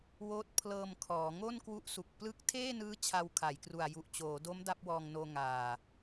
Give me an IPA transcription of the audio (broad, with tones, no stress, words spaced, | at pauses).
woː˦˥t̚pʰlɤː˧mkʰɔː˩˦ ŋo˥˩nkwu˦˥ʔsu˨˩k̚ plɯ˦˥k̚tʰeː˥˩nɯː˦˥ t͡ɕʰa˧wkʰa˩˦jkru˨˩a̯ ju˨˩ʔt͡ɕoː˩˦do˦˥m da˦˥p̚wɔː˧ŋnoː˧ ŋaː˨˩